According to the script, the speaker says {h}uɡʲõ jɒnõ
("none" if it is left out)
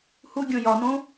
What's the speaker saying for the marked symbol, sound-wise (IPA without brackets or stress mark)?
h